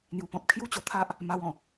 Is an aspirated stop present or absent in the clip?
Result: present